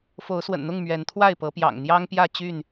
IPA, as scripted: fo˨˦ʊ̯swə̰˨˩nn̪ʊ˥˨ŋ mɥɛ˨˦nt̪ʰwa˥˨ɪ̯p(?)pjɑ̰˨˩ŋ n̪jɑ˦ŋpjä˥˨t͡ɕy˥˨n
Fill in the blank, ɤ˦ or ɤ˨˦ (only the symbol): ɤ˨˦